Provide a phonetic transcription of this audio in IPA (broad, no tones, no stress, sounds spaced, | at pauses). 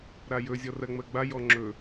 ɾ a j ɵ zʲ ɔ r ɜ ŋ͡m ɜ ɡ͡b a j ɔ ŋ͡ǁ ɵ